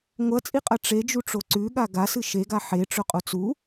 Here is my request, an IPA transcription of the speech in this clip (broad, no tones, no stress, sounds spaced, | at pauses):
ŋʷ ɐ t͡sʼ i qʼ ɐ ʈ͡ʂ e d͡ʒ u ʈ͡ʂ o ǀ ʉ ɠ a ɡ a s ɨ ʃ e ɡ a ħ e ʈ͡ʂ ɵ qʼ o t͡s u